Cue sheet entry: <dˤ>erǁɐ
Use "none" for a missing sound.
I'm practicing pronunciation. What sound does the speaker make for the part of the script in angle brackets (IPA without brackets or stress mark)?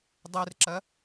dˤ